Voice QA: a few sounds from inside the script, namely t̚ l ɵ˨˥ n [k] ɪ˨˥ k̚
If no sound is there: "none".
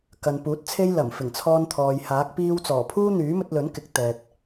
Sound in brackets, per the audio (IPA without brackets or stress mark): k